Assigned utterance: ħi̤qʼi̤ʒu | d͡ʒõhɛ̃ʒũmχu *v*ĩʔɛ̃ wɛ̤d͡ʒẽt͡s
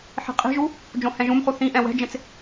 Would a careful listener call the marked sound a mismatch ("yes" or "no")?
yes